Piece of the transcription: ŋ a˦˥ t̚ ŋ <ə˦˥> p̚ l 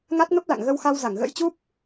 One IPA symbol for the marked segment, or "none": ə˦˥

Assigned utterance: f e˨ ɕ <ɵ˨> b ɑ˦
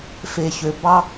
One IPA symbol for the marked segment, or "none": ø˨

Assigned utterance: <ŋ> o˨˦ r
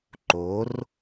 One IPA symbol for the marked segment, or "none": ǃ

